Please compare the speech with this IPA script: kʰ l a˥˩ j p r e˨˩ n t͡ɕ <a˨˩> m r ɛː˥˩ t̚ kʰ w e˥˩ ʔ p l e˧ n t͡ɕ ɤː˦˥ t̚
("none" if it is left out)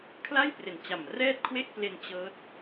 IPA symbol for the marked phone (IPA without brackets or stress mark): a˨˩